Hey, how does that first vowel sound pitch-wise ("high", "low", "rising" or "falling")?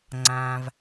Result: low